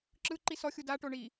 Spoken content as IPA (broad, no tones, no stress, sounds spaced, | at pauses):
ǁ ɯ ǃ i s ɔ xʲ u d a ʈ o ɳ i